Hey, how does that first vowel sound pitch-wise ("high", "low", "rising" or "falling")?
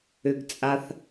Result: high